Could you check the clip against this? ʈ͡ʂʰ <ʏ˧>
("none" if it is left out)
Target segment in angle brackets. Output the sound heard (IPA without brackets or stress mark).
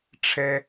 ɛ˧